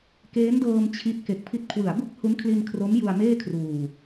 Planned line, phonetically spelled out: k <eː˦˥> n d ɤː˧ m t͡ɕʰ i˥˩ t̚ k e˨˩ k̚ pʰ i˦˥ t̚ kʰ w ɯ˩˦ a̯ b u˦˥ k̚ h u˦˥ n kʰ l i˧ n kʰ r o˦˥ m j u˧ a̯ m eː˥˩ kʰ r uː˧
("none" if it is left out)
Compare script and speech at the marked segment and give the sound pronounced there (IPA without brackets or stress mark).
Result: eː˦˥